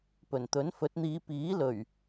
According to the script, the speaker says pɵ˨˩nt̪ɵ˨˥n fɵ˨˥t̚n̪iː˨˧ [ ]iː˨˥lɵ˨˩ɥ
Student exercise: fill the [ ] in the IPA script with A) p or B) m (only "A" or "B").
A